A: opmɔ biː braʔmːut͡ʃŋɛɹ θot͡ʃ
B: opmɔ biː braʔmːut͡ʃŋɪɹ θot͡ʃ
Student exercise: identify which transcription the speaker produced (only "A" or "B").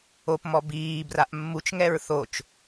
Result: A